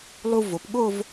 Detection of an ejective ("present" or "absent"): absent